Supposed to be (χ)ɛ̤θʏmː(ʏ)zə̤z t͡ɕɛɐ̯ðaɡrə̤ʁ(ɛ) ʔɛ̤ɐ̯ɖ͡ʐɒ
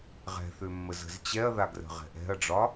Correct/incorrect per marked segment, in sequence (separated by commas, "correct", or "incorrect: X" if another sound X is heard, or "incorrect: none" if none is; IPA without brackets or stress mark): incorrect: ʁ, incorrect: ə, incorrect: ɛ̤